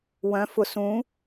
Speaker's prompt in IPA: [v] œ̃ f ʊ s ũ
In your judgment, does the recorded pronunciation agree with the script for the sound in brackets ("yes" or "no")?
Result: no